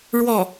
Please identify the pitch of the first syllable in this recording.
falling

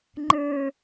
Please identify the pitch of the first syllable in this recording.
high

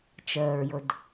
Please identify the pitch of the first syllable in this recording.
low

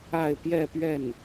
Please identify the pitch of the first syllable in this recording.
falling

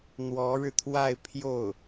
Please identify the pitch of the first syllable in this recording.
rising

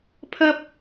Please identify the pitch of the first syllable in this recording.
high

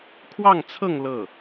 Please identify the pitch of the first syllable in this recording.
falling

